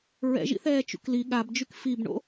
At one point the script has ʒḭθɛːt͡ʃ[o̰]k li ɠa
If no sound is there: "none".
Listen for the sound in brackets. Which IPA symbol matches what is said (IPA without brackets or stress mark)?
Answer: ṵ